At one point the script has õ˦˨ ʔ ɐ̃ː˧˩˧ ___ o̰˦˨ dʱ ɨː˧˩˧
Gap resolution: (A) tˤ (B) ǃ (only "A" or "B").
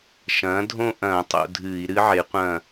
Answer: A